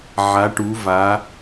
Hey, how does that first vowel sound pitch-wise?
rising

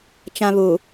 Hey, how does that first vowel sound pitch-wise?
high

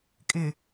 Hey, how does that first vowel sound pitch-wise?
low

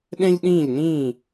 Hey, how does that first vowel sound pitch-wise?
high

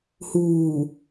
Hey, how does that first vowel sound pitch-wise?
low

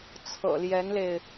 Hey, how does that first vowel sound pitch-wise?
low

